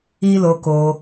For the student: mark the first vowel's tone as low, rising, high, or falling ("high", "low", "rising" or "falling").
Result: high